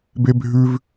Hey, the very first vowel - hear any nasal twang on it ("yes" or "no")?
no